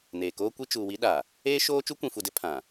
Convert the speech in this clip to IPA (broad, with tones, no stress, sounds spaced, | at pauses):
n eː˨ k oː˦ kʷ i˦ t͡ʃ uː˨ w i˦ ɗ a˨ | eː˦ ʃ oː˦ t͡ʃ u˦ kʷ ĩ˨ f u˨ d ɪ˦ pʰ ã˨